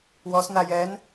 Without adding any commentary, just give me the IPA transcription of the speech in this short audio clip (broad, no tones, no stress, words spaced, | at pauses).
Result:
wɔsna jɛn